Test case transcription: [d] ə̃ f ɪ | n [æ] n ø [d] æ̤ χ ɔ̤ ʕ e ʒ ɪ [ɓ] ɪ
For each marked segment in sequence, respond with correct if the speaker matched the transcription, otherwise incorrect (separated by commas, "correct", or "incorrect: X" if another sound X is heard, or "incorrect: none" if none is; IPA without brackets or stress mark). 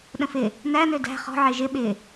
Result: incorrect: ɗ, correct, correct, correct